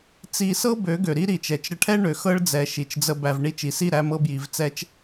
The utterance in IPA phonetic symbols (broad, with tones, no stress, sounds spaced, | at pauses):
t͡s i˧ s ɤ˦ b ø˨˦ ɡ ø˨ ɾ i˦ ɾ i˨ t͡ʃ ɛ˨ t͡ʃ ɾ ə˧ ʈʰ ɛ˦ ɳ ø˨ x ɤ˦ ɭ d͡z ɛ˨ ʃ i˨ t͡ʃ d͡z ə˧ b æ˨ v ɳ i˦ t͡ʃ i˨ s i˦˨ ɾ æ˧ m ɤ˧ b j i˨ v t͡s ɛ˧ t͡ʃ